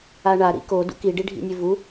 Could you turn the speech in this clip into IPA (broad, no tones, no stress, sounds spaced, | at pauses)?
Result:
a ɳ a ɾ ḭ k o d ṵ k i ɖ i ɖʱ ḭ nʲ ʉ v u